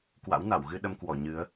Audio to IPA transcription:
kwa̰˧˥wna˧˩wɣɨ˧ ɗə˧mkwɔ˧˩ ɲɨ˨˦ə̯

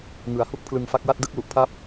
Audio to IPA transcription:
ŋɯ˩˦a̯hu˥˩k̚ pʰlɯ˧ŋfa˦˥k̚wa˥˩t̚ dɯ˥˩k̚lu˨˩ʔpʰa˦˥p̚

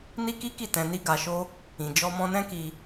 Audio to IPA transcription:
ni˦ki˦ki˦˨ tɛ̃˧ni˦ ɡa˧ʃo˦ | ĩ˨ d͡ʒɔ˧mɔ̃˧nɛ̃˦ki˧

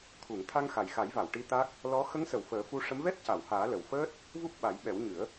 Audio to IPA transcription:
t̪ʰu˨˩˨ŋ t̪ʰa˧ŋxa˨˩jxa˨˩˦jva˨˩˨w ʈi˧˥t̪a˦˥k̚ | lɔ˧˥ xə˧˥ŋsə˨˩˨w fəː˨˩˦fu˧ ʂə˧˥m vɛ˦˥t̚ca˨˩˨whaː˨˩˦ lə˨˩wfəː˦˥t̚ | vu˦˥p̚ɓa˨˩˦jɓɛ˨˩˦wɲɨ˨˩˦ə̯

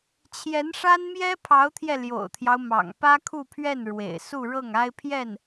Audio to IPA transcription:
t͡ɕʰjɛ˧˥nʂa˥nmjɛ˥ pʰɑ˧˥ʊ̯t̪ʰjɛ˧ ljo̰˨˩ʊ̯t̪ʰjɑ˦ʊ̯ mɑ̰˨˩ŋ pä˥kʰu˥˧pʰɥɛ˥˩n ɻwḛ˨˩ɪ̯su˥˧ɻɤ˥˩ŋ a˥ɪ̯pʰjɛ˥˩n

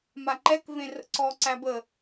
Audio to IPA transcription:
maǃɛk vẽrə̰ǀɔ ǀæbə

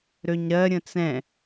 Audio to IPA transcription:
ɾøɲɾɜ ɾʲə̃t͡sɛ̃

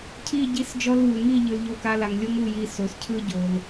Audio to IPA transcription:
cʰi˦˨ɟi˧s d͡ʒɔ˧lβu˨ŋi˦˨ ʎɯ˨lʎo˧ka˧la˨ŋ lʲo˦ŋu˦˨ji˧ so˨s cʰɯ˦ɟo˨l

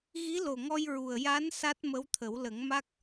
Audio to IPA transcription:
ɣi˧˥lo˨˩ŋɔ˧j ɹu˨˩ə̯ ja˧˥n sa˦˥t̚mə˧˥wt̪ʰə˨˩˦w lə˨˩˦ŋma˦˥k̚

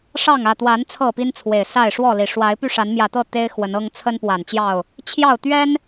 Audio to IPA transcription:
ʂɑ˥˨ŋä˥˨ t̪wa˨˦n t͡sʰɤ˥˨pi˦nt͡sʰwe˨˩ɪ̯sa˥˨ɪ̯ ʂwɔ˥˨li˨˩ ʂwa˨˦ɪ̯py˥˨ ʂa˨˦nmjä˨˩t̪ɤ˥˨ t̪e˦ɪ̯ xwə˨˦nɤ˦ŋ t͡sʰə˦npwa˨˩nt͡ɕjɑ˥˨ʊ̯ | t͡ɕʰjɑ˥˨ʊ̯t̪ɥɛ˦n

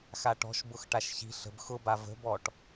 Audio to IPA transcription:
xaʈɔ̤ʃbʊx ʈaʃçi̤ ɬə̤b xʊba və̤bɔʈ

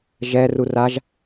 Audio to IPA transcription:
ʒɛrur aʒ

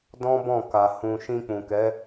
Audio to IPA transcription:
dɔ̃˦bɔ̃˦˨ka˨ hũ˨ ʃĩ˧k͡pũ˨kɛ˨˦

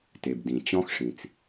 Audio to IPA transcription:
te˩bdĩ˩t͡ɕɔ̃˥xʂĩ˩t͡s

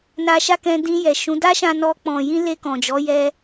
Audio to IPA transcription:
na˧ʃa˦kɛ̃˧ dĩ˧jɛ˨ʃũ˨˦ da˦ʃã˧nɔ˧ k͡pɔ̃˨jĩ˧ le˧kɔ̃˨d͡ʒɔ˨˦ jɛ˧

